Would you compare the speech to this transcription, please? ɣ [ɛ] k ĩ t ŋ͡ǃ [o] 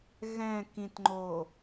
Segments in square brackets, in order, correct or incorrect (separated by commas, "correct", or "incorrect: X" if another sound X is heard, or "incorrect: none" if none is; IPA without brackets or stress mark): incorrect: ɛ̃, correct